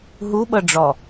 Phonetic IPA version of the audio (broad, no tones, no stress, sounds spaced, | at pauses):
ɦ u ɓ ɤ ɖ͡ʐ ɔ